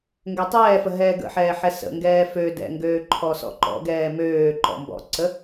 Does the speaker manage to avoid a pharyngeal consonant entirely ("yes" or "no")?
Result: no